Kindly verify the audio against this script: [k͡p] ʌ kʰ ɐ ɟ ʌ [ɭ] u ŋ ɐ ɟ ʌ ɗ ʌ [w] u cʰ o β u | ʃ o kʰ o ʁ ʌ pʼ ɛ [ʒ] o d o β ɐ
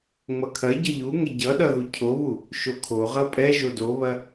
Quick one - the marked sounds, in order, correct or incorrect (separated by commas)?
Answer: incorrect, incorrect, incorrect, correct